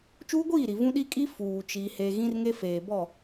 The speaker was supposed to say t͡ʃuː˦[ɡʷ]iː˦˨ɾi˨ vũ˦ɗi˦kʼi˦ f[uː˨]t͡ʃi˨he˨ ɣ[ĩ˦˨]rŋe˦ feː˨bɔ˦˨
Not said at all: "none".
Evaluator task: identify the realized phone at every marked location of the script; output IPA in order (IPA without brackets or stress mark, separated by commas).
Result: ɡʷ, uː˨, ĩ˦